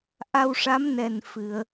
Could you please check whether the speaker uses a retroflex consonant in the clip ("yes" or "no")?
yes